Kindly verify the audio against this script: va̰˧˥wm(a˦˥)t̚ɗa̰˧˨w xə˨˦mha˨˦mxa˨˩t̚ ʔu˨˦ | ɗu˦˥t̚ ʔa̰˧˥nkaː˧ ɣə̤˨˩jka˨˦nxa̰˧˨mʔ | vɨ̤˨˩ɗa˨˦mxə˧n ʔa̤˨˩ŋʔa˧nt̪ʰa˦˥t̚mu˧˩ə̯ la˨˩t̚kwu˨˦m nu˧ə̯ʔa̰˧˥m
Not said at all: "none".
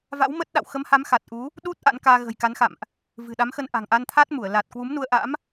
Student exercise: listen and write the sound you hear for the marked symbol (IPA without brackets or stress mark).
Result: ə˦˥